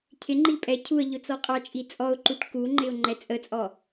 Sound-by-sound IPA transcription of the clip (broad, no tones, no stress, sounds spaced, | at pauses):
cʰ ɪ ŋ͡ǃ i pʼ ɛ cʰ u ə̯ ʎ ʊ t͡s ɔ qʼ ɑ t͡ʃʼ i t͡sʼ ɔ ʊ̯ ǃ u ʈ k u ŋ͡ǃ ɪ ʊ̯ ŋ͡ǃ ɛ t͡sʼ ə t͡sʼ ɔ